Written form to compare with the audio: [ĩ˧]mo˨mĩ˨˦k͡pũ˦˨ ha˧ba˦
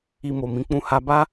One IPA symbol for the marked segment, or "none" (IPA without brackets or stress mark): i˧